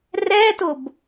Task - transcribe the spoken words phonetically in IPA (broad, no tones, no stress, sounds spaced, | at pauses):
r ɛ t ʊ b